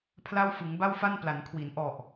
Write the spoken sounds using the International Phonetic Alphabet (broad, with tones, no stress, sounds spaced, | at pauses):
pʰ l a˥˩ w f ɯ˩˦ ŋ b a˥˩ w f a˥˩ n p l a˩˦ n kʰ w i˩˦ n ʔ ɔ˨˩ ʔ